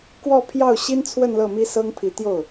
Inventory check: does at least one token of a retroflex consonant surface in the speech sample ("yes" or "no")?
no